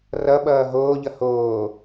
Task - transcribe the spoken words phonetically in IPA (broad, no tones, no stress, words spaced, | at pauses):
rʌ ɓʌːɦoːʎʌ hoː